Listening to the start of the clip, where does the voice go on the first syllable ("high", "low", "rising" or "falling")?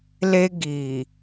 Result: high